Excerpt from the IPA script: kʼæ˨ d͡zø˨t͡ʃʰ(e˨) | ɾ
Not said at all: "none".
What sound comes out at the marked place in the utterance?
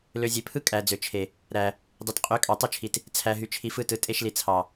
e˨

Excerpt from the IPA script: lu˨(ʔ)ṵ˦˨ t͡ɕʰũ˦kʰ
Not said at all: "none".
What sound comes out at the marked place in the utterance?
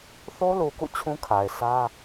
k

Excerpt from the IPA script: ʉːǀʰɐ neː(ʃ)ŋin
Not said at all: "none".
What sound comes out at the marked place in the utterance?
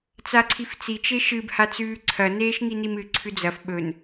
ʃ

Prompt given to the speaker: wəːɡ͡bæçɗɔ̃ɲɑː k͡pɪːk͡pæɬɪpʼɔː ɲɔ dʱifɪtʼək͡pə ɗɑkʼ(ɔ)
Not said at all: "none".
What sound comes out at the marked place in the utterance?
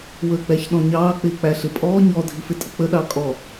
ɔ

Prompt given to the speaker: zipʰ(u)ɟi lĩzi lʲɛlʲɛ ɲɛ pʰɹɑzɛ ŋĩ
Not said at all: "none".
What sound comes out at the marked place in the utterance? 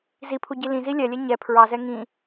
u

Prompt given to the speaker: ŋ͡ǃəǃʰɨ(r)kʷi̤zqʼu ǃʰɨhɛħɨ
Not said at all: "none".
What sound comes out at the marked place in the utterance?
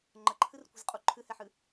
r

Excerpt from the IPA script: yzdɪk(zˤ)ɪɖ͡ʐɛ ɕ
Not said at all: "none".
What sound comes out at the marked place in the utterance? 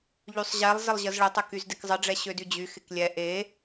zˤ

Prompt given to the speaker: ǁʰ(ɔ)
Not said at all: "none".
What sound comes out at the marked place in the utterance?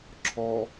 ɔ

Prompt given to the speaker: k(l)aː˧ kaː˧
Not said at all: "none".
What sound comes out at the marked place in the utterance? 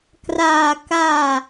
r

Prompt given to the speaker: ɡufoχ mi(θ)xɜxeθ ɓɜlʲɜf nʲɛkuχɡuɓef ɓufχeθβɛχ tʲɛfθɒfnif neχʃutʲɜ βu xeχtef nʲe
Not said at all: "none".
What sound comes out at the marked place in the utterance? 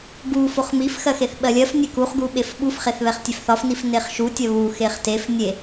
f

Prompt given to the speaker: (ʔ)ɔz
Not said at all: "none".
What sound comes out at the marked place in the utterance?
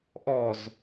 ʔ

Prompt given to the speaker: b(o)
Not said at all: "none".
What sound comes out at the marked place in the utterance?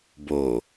o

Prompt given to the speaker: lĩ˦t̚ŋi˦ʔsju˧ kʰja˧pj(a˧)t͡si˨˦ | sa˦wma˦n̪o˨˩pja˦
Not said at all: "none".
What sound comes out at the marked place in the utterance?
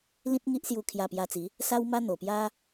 a˧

